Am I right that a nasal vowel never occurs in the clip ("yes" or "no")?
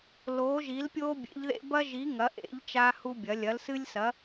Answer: yes